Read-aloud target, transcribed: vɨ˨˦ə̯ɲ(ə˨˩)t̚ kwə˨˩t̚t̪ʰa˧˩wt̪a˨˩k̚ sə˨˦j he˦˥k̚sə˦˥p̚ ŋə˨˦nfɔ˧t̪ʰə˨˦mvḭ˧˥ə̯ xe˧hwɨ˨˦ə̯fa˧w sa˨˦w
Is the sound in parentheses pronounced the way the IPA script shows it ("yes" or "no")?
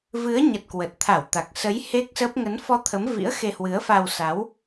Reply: yes